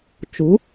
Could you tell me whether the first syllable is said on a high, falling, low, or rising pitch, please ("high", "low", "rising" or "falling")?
rising